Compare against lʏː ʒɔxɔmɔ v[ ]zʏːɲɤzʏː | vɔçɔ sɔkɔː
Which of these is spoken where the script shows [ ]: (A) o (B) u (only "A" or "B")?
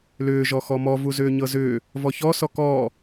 B